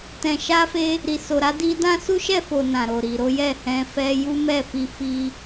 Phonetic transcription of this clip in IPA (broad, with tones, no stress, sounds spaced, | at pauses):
t ɛ̃˨ ʃ a˧ f e˧ | ɾ i˨ s o˨ ɾ a˨˦ d i˧ d ã˦ s u˦ ʃ ɛ˦˨ f o˨ n ã˨ ɾ o˨ ɾ i˨ ɾ o˨˦ j ɛ˦˨ h ɛ̃˨˦ f ɛ˧ j u˦ m ɛ˦˨ f i˧ f i˦